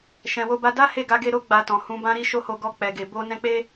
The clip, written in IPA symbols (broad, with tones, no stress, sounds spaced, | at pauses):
ʃ ɛ̃˧ w o˦ b a˦ d a˦ h e˦˨ ɡ a˧ ɡ e˧ ɾ o˦ ɡ͡b a˧ t ɔ̃˨ h ũ˧ b ã˦ ɾ i˦ ʃ o˦ h o˧ ɡ ɔ˧ k͡p ɛ˨ ɡ e˨ b o˧ n ɛ̃˧ k͡p e˦